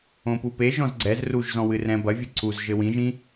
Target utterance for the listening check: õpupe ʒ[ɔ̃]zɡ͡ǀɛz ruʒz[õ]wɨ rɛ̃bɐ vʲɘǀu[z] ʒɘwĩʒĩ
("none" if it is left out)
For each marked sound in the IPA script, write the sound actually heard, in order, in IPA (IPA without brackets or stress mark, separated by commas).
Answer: ɔ̃, ɔ̃, z